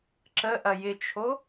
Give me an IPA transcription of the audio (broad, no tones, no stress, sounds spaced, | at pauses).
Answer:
ǁ ə ʔ ɐ j ɪ t͡ʃʰ o